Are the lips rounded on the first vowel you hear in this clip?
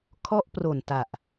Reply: yes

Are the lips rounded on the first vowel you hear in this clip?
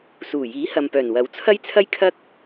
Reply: yes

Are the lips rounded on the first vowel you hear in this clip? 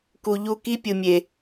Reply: yes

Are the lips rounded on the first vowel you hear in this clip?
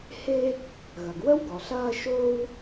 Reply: no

